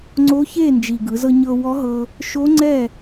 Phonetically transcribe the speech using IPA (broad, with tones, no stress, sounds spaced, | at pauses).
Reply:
ŋ͡ǀ o˧˥ ç e˥˩ n d͡ʒ i˨˩ ɡ ɯ˩˧ z ɤ˧ ɲ ɤ˧ w ɔ˧˥ ɦ ɤ˧ | ʃ o˧˥ ŋ͡ǀ ɛ˥˩